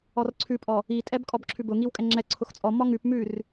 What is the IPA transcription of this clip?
ɔ r ǀʰ ʉ pʼ ɔ | i tʼ ɛ b kʼ ɔ b ǁʰ ʉ b ʊ ŋ i w kʼ ɛ ŋ͡ǁ ɛ ǀʰ ʊ x t͡sʼ ɔ m ɔ ŋ ʉ p m ʉ r

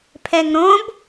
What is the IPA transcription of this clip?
pʰ ɛ ŋ ɾ õ b

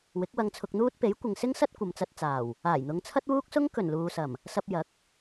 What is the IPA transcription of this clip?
w ɪ˨˥ k̚ w ɐ˧ ŋ t͡sʰ ʊ˧ k̚ n̪ uː˥ t̚ p e˨˥ j kʷ ɪ˨ ŋ s ɪ˥ ŋ s ɐ˥ t̚ kʷ ɐ˨ m t͡s ɐ˧ t̚ t͡s aː˨˩ w | aː˨˩ j n̪ ʊ˨˧ ŋ t͡sʰ ɐ˥ t̚ w uː˥ k̚ s ʊ˥ ŋ k ɵ˨˩ n l uː˨ s ɐ˨˩ m | s ɐ˧ p̚ j ɐ˨˥ k̚

